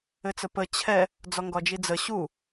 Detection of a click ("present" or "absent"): absent